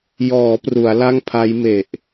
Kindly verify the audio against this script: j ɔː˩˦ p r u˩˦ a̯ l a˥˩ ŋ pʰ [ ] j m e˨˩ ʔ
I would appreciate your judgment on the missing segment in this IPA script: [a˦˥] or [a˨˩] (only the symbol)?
a˦˥